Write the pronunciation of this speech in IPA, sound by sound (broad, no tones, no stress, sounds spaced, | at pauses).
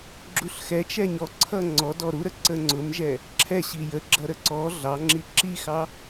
ɡ͡ǁ u ɬ x ɛ t͡ʃ ɛ ɲ ɔ ǀʰ ʌ ŋ͡ǀ ɔ d ɔ ɾ u ɾ ə ǀ ə ŋ͡ǀ ʊ m ʒ ɛ | ǁʰ ɛ ɕ i j ə ɡ͡ǁ ʌ ɾ ə ǀ ɔ ɮ ɑ ŋ͡ǁ i ǁ i x ɑ